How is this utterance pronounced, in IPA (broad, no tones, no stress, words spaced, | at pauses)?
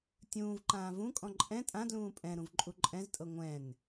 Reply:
tʲũːvǃãː vũkʼɔ̃ ǃʼɛ̃ tʼãdlũː pʼɛ̃ɾũv ǃʼuǃʼɛ̃ztʼɤ ŋʷɛ̃n